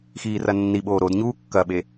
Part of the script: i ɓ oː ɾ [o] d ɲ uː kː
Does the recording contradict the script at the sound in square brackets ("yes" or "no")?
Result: no